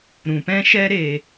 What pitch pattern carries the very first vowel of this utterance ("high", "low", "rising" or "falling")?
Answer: low